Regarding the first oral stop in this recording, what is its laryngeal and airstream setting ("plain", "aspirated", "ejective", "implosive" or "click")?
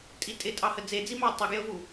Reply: ejective